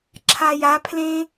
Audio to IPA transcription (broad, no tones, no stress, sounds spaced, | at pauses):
ǁʰ a j a pʰ l ẽ